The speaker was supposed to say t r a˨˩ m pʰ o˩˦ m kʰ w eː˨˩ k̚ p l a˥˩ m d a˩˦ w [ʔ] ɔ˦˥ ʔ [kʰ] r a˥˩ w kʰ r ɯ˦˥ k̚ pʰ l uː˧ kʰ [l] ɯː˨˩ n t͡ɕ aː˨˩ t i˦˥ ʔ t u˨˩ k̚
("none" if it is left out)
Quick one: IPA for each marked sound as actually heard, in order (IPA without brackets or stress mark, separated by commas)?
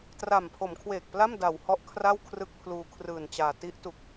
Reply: h, kʰ, r